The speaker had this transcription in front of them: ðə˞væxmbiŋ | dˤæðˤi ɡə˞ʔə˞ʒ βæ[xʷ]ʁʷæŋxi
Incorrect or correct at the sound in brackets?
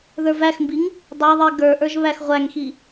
incorrect: x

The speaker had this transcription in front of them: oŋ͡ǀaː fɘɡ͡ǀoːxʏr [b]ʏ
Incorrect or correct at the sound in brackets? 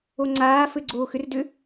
incorrect: d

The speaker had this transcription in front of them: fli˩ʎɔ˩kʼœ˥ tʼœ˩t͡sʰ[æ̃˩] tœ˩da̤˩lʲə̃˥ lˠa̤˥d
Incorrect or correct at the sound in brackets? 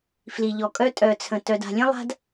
incorrect: ə̃˩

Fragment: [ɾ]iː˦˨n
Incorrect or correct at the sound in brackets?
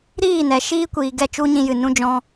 correct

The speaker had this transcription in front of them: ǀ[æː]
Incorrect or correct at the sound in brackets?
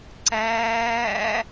correct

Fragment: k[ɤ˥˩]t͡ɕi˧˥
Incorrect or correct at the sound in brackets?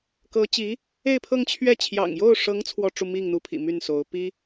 incorrect: ɤ˧˥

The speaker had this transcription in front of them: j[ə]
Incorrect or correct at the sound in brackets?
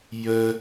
correct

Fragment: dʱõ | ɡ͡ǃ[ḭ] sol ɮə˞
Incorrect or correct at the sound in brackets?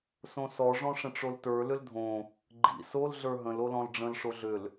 correct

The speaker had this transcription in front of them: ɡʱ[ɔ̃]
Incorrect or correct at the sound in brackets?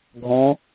correct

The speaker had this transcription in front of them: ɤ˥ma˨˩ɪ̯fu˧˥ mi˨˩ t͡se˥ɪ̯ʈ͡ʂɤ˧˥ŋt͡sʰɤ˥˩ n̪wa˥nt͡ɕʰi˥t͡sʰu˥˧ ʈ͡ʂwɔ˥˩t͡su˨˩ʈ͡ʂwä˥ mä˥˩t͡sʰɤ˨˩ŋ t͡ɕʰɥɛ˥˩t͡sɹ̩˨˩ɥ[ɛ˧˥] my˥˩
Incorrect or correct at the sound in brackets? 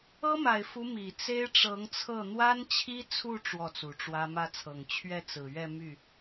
incorrect: ɛ˥˧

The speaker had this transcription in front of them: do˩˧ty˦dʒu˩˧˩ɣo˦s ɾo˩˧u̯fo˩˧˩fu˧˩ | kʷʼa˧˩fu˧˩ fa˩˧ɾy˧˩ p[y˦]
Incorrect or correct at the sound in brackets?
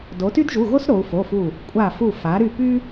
correct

